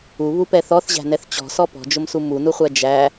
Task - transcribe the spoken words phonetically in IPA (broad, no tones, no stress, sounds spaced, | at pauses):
u β u p ɛ θ ɔ θ ʑ æ̤ n ɛ θ t͡ɕ ɔ̤ s ɔ p ɔ̤ d͡ʒ ʊ m s u m u n u χʷ æ d͡ʒ æ